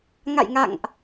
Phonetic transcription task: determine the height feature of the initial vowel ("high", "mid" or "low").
low